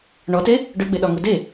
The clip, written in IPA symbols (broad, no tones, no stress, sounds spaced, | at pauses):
ɳ ɔ t e | ɖ ø ɡ͡b e ɗ ɒ ŋ u d e